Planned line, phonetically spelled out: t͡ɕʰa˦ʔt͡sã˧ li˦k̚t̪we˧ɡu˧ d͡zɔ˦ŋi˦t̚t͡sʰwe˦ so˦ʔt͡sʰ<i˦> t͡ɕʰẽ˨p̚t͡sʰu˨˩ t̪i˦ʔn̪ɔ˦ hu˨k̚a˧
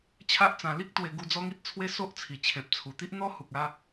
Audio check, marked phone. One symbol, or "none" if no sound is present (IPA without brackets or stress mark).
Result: i˨˩